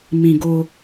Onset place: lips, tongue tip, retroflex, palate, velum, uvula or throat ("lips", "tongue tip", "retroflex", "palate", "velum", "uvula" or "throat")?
lips